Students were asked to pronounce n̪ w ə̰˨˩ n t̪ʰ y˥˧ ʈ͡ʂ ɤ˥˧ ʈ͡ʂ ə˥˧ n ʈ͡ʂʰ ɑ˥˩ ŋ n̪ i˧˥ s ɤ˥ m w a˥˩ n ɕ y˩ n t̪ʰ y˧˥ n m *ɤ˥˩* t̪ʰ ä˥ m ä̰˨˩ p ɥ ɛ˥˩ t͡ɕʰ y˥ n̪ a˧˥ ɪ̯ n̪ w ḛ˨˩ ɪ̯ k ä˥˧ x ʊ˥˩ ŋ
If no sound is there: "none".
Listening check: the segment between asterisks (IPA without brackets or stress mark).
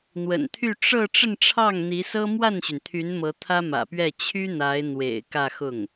ɤ˧˥